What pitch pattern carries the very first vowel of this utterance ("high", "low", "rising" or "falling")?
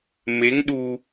rising